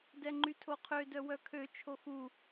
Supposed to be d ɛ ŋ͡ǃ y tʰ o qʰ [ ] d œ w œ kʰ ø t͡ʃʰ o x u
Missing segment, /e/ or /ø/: ø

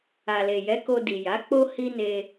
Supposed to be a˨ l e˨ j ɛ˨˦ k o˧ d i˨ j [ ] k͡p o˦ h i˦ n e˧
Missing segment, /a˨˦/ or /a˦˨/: a˨˦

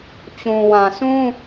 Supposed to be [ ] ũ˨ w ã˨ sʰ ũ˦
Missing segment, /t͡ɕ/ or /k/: t͡ɕ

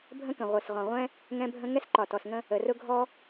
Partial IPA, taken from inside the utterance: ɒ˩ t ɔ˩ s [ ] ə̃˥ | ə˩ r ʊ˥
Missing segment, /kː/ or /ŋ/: ŋ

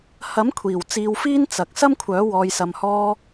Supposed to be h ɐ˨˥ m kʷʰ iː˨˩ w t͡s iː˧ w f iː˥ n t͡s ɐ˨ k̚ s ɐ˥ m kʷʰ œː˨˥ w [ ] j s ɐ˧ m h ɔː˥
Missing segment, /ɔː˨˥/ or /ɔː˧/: ɔː˧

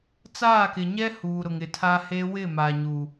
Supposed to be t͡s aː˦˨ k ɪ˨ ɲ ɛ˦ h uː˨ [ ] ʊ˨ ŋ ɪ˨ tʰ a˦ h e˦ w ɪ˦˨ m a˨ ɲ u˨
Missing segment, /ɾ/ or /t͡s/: ɾ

